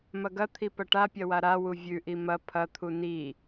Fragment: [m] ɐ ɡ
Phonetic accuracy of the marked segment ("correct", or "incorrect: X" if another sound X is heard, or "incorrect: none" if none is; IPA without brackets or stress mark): correct